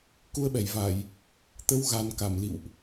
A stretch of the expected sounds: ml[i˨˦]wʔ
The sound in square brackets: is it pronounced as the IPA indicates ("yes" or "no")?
no